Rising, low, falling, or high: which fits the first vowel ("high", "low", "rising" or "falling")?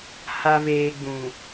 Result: low